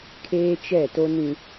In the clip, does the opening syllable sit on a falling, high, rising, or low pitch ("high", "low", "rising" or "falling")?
high